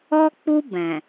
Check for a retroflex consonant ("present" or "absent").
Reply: absent